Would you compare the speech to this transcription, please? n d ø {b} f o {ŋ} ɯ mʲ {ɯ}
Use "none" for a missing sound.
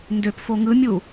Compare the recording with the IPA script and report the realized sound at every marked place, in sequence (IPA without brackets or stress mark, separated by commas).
p, ŋ, u